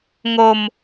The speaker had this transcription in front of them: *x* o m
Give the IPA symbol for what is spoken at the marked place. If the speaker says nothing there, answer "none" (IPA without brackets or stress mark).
ŋ